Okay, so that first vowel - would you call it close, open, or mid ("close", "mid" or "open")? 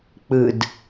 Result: close